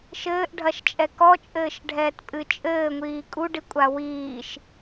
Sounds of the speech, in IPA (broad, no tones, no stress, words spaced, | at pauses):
ʃɘːʔɖʱɐʃt͡ʃʼɛ kɔt͡ʃʼɘːʃɖʱɛːtpʼɨ t͡ʃʼɘːŋʷiː kʼuɖikʷʼa wiːʃ